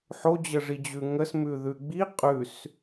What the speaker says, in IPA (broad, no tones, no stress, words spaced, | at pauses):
ħod͡ʑəʐid͡ʑʉ ŋəsmʉðʉ ɡ͡bi qʼʉs